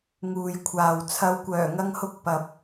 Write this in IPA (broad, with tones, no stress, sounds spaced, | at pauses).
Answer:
ŋ uː˨ j kʷʰ aː˨ w t͡sʰ ɐ˨˧ w kʷ œː˨˩ ŋ ɐ˧ ŋ h ʊ˧ k̚ p ɐ˨ p̚